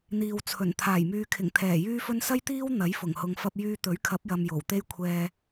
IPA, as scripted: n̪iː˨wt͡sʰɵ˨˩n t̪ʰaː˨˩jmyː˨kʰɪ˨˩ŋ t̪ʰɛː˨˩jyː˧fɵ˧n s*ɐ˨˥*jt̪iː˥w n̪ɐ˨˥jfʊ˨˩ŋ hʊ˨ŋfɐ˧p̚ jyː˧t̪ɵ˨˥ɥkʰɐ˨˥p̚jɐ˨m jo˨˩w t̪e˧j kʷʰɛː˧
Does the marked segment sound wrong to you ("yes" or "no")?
yes